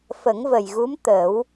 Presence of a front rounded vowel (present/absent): absent